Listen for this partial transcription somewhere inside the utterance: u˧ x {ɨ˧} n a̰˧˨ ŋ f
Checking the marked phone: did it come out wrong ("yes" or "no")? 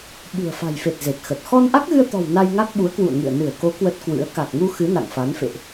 yes